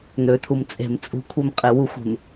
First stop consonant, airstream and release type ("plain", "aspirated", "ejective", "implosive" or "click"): aspirated